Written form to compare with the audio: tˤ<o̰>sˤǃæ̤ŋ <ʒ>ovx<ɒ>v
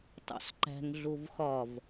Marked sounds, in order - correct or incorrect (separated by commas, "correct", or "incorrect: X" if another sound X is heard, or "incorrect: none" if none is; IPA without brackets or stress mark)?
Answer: correct, incorrect: ɮ, correct